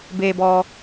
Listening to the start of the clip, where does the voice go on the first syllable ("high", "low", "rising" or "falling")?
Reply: low